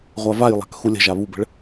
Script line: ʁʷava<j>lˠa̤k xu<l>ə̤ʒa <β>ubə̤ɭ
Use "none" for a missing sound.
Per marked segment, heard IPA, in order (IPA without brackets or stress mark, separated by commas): j, lʲ, β